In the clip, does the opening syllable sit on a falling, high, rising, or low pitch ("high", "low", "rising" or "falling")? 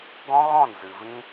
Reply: high